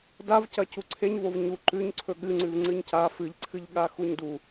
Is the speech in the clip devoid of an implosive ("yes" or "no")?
no